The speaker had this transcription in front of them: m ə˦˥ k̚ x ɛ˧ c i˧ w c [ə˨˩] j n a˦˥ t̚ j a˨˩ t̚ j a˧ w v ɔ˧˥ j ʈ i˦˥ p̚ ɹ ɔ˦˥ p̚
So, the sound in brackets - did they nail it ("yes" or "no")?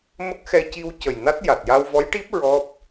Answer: yes